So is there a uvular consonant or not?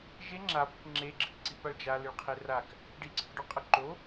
yes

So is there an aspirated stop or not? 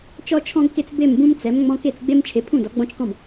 yes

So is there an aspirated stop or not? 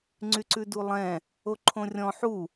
yes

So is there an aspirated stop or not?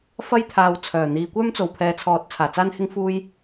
yes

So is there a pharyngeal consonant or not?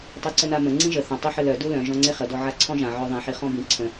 yes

